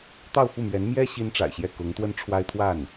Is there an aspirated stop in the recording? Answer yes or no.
yes